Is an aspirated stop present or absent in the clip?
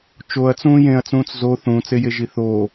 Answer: absent